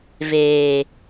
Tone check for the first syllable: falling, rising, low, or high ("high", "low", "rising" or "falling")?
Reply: low